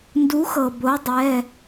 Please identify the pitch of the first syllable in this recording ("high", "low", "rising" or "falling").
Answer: rising